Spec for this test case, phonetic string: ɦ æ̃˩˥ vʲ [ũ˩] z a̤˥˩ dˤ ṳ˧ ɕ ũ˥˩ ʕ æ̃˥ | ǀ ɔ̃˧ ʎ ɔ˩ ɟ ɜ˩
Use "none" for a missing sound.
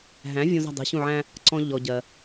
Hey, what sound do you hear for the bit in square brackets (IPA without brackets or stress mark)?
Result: ũ˧